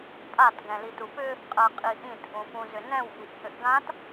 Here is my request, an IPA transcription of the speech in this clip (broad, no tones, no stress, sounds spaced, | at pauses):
pʼ a t ɡ ɛ̃ l i t u p ʏ | qʼ ɜ qʼ i ʔ ĩ t ʔ ũ p ũ z ʏ n ɛ̃ w ʔ i ʔ h ʏ ʔ ɡ ã t